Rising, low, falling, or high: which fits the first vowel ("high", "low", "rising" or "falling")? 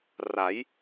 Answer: rising